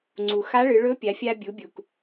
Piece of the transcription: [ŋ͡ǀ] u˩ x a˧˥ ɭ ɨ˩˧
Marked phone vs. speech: correct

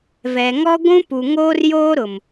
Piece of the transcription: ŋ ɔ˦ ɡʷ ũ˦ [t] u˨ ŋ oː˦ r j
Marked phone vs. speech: incorrect: p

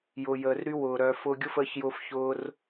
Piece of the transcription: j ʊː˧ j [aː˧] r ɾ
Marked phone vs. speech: incorrect: əː˧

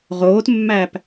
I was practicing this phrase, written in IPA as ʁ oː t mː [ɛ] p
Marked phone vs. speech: incorrect: æ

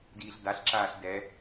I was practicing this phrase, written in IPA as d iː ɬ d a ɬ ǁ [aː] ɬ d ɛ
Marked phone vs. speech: correct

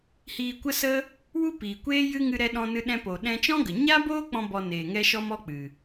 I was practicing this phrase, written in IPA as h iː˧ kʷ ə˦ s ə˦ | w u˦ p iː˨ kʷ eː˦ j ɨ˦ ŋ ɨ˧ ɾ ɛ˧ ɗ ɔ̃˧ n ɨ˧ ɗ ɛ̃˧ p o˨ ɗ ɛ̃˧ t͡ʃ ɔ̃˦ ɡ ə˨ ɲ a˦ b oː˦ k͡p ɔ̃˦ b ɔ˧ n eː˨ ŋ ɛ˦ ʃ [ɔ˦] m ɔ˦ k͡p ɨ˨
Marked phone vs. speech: correct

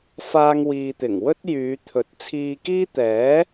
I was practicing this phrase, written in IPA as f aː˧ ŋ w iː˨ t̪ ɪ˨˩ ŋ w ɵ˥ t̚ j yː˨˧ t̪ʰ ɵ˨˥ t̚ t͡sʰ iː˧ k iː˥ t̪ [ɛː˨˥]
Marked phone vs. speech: correct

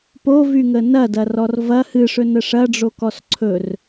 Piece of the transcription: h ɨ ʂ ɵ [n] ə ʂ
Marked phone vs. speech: correct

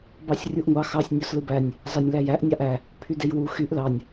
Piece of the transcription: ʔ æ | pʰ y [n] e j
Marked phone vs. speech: incorrect: d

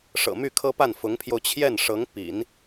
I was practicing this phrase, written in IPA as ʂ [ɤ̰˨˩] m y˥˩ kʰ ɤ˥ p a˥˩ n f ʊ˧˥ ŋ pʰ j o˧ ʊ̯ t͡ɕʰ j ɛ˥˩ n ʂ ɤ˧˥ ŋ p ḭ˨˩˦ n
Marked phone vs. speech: correct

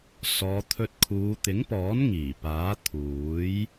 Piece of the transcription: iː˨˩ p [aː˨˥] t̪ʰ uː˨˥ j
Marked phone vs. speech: correct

